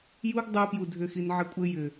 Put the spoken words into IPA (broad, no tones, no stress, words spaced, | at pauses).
juɡ dˤu pjudʱʏxin ʕɘkʷʼɘ jʏ